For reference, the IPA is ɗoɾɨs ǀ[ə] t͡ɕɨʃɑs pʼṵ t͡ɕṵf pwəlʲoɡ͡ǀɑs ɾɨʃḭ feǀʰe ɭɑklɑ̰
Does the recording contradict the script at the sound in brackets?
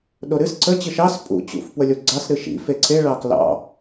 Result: no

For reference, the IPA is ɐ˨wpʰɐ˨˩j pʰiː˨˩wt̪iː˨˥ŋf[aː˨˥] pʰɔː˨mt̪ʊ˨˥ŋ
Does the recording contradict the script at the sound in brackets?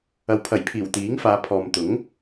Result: yes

